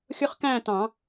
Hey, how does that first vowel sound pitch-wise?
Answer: high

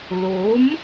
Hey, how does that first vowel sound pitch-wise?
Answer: rising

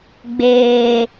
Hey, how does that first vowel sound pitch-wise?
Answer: low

